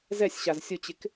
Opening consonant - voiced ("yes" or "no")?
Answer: yes